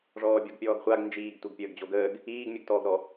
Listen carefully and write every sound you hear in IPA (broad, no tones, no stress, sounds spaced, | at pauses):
ʐ ɔː bʲ ɔ ɡ pʲ ɔː ɡ χʷ a ɡ n d͡ʒ iː ɡ tʷ i ɡ pʲ əː ɡ d͡ʑ o ɡ əː ɡ | iː ɡ mʲ o ɡ t ɔː ɡ ɾ ɔ